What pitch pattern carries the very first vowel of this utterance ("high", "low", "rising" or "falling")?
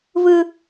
high